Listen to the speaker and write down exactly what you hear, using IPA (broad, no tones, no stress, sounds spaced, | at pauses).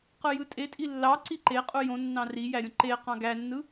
q ɯ j ɯ tʼ e tʼ i lː ɑ ǀ i ǃ e qʼ u j õ nː ɑ̃ r i j æ ɾʲ õ ǃ e q ɑ̃ ɡ æ nː ɯ